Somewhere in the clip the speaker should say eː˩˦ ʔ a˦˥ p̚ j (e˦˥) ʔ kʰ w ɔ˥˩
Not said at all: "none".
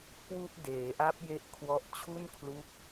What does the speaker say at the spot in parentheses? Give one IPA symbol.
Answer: e˦˥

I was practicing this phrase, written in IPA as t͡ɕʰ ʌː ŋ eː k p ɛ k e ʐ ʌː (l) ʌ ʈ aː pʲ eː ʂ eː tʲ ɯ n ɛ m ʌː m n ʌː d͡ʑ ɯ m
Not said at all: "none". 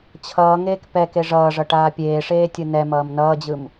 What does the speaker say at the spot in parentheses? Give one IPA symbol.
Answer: ʐ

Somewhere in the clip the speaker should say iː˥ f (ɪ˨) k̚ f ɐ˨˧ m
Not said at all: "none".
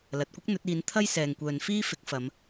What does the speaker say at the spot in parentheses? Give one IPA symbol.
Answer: ɪ˨˥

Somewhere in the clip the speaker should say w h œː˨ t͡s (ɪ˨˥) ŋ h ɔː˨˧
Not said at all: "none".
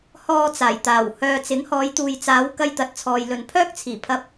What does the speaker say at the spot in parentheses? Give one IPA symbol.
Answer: ɪ˨˥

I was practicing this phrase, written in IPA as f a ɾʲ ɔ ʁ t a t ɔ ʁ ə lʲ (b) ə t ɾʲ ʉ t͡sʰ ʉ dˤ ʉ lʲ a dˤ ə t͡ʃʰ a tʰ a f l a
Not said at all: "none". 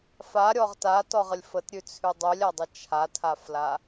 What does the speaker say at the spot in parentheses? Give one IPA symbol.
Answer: f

